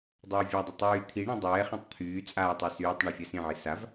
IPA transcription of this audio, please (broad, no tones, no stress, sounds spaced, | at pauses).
dˤ ɤː vʲ a dˤ ʊ tˤ yː t̪ʰ i ɳ ĩ dˤ ɛː χ ɛ̃ tˤ t̪ʰ yː t͡sʼ aː tˤ ɜ s yː tˤ ɳ ɛ fʲ a s ĩ ʕ i s a v